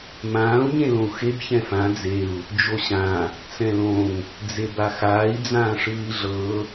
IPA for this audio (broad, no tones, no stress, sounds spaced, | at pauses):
m ãː u̯ ɲ ẽ l õ u̯ x e b ç ɛ̃ f ã d͡z e u̯ | d͡ʒ o ɕ ã | t͡s ɛ̃ l õ ŋ | d͡z e b a x aː i̯ d͡z ãː ʂ ɯː i̯ ɮ ɤ